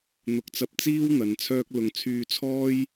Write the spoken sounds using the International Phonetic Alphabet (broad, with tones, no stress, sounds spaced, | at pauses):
n̪ ʊ˨˥ k̚ t͡s ɐ˧ p̚ t͡s iː˥ w n̪ ɐ˨˧ n t͡sʰ œː˥ k̚ l ʊ˨ ŋ t͡sʰ yː˧ t͡sʰ ɔː˥ j